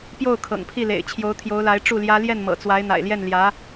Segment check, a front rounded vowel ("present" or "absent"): absent